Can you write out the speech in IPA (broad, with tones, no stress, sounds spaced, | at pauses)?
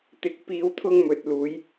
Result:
t̪ ɪ˨˥ k̚ p iː˨˧ w t̪ʰ ʊ˧ ŋ m ɵ˨ t̚ l uː˨˧ j